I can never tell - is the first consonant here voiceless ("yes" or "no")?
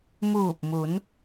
no